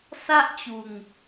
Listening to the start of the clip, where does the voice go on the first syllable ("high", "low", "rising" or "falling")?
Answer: high